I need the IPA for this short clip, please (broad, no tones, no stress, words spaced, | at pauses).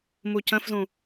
mucə̃fzũ